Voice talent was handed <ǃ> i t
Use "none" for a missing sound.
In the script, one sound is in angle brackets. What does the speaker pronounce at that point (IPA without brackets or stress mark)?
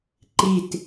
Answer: ǃ